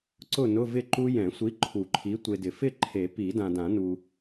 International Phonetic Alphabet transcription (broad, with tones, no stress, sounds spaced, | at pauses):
ǀ ʊ˥˨ n ʊ˧˥˧ v ɪ˥˨ ǃ u˦˥ j ɛ̃˨˩˦ sʷ i˨˥ ǃʰ u˨˩˦ ǃʰ i˨˥ tʷ e˨ d ɪ˨ f ɪ˥˨ ǃʰ e˨˩˦ p i˨˩˦ d ã˨ d ã˨˩˦ n u˨